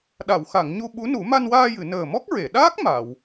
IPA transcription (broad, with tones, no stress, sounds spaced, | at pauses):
ɗ a˨˩˨ w x a˨˩˨ ŋ ɲ u˧ ɓ u˧˥ n u˨˩˦ m a˧ n w aː˧ j ɨ˨˩˨ n əː˨˩ m ɔ˦˥ k̚ ɹ e˨˩˨ ɗ aː˦˥ k̚ m a˨˩˨ w